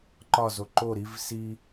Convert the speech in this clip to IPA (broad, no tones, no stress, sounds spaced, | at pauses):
ǃ ɒ z o ǃ o ɾ i v s i